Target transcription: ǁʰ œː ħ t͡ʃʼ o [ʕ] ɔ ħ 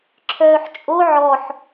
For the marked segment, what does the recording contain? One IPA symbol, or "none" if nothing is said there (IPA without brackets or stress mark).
ʕ